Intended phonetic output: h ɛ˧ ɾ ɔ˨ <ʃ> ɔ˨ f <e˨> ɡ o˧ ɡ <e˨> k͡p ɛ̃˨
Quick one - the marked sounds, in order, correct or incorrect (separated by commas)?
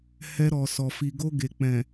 incorrect, incorrect, correct